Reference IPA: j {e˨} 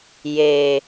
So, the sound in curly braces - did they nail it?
yes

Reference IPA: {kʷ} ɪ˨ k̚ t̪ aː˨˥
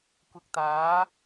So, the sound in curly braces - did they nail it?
yes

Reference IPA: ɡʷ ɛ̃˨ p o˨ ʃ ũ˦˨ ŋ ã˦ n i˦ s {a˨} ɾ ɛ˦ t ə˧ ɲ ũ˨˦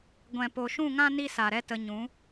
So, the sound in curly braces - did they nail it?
yes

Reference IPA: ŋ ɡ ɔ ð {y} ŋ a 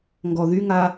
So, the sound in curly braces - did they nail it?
yes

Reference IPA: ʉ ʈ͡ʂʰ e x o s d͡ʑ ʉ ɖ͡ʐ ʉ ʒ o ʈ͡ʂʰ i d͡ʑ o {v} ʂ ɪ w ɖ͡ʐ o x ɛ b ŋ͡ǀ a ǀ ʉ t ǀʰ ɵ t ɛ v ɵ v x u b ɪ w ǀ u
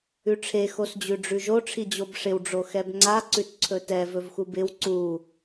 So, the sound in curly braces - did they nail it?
no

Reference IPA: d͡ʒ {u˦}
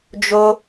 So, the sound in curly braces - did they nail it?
no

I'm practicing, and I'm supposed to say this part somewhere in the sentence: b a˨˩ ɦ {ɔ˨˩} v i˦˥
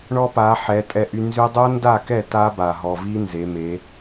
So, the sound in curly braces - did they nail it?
yes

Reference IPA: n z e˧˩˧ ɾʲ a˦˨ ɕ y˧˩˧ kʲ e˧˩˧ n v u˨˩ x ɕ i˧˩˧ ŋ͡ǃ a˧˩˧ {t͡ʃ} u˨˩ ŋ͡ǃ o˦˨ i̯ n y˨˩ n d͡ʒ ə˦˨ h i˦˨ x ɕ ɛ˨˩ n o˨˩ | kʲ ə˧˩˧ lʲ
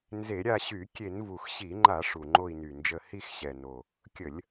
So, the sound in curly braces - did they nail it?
no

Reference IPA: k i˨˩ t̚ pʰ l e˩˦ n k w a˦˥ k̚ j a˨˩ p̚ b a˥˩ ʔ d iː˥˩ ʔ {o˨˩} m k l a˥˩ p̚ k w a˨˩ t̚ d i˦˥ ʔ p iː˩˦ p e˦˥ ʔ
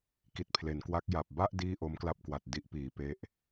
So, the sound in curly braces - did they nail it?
no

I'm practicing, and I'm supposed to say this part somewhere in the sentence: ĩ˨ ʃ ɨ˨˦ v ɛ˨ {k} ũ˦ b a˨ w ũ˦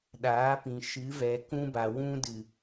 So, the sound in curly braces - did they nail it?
yes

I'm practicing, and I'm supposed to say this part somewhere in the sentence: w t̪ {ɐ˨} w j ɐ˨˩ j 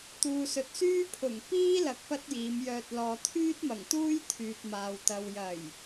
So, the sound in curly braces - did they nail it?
yes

